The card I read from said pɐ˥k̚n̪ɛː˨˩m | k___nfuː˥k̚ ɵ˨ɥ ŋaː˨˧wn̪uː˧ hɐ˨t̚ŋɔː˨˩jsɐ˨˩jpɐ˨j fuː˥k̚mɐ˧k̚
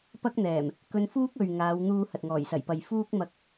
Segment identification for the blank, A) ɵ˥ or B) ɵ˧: B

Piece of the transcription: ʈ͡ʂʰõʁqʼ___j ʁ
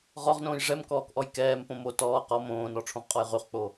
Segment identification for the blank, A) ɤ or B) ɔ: B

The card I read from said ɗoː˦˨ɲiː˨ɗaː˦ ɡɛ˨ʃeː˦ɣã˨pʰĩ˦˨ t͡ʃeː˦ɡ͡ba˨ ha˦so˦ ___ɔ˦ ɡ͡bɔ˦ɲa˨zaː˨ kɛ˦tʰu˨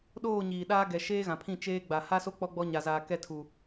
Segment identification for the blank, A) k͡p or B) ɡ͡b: A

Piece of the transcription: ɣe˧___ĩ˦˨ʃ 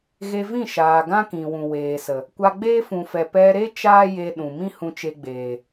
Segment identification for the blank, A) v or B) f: A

